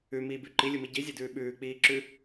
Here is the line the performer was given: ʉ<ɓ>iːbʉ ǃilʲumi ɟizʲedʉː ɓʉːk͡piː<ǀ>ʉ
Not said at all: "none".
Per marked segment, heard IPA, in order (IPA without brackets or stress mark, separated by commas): m, ǁ